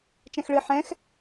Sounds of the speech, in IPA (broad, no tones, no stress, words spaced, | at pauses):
t͡ʃɛ̃xɭɨ ħɛ̃x